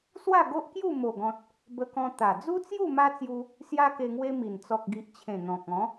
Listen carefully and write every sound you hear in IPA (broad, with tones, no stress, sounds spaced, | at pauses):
s w a˥˧ ɡ o˦ ʔ k j u˥˧ m o˨˩ ɡ ɔ̃˨ t̚ | b ə˧ k ɔ̃˧ t̪ a˨˩ d͡z u˦ t͡s j u˥˧ m a˦ t͡s j u˧ | s j a˦ k e˧ ŋ w e˦ m i˨˩ n t͡s ɔ˨ k̚ ɡ i˨ ʔ t͡ɕʰ ẽ˨˩ n̪ ɔ̃˨ k̚ ɔ̃˨˦